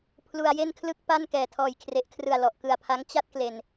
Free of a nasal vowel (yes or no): yes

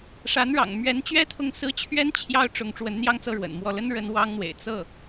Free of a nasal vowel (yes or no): yes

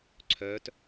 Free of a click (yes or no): no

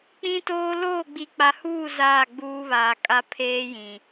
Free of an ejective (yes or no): no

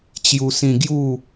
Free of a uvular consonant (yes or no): yes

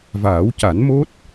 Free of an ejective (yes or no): yes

